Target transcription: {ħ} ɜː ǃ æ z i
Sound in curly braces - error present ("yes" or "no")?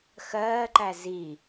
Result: yes